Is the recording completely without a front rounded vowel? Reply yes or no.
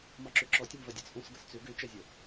no